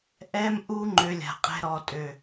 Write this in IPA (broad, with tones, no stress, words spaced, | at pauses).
ʔɛ˦mʔu˦ ŋ͡ǃø˧lʲa̤˨qʼɛ̤˧ ɾɔ˨tʼø˨